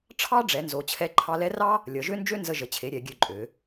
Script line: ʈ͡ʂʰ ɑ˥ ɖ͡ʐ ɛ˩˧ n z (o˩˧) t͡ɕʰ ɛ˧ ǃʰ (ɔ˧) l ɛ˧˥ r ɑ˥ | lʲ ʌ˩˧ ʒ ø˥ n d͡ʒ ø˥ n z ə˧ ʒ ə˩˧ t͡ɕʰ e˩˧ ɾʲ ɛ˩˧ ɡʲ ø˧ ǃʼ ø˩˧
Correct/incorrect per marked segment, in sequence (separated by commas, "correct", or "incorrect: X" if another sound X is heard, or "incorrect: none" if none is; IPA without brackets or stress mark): correct, incorrect: ɑ˧